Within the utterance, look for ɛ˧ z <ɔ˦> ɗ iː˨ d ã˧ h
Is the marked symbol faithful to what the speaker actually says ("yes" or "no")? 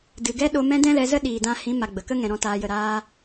no